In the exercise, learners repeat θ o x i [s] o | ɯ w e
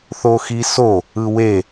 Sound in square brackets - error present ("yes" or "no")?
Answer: no